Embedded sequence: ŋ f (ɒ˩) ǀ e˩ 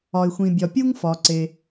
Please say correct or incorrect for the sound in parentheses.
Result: correct